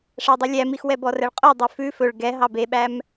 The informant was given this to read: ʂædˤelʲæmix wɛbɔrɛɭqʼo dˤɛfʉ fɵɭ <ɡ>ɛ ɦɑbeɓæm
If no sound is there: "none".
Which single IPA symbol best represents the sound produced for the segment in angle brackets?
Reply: ɡ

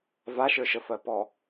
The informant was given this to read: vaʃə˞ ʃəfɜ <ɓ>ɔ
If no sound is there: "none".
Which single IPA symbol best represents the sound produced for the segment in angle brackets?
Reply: p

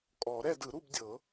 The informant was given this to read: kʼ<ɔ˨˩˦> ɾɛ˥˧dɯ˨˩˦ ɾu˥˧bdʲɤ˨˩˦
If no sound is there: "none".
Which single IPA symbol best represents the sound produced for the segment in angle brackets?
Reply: ɔ˨˩˦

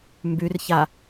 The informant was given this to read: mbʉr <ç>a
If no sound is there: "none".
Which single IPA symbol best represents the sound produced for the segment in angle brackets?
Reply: ç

